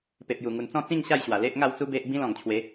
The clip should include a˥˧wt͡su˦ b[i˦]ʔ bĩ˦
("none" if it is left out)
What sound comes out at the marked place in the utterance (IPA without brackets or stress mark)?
e˦